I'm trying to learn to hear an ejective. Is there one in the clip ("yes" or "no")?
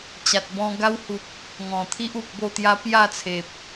no